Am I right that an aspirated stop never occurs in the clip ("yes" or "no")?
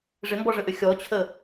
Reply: no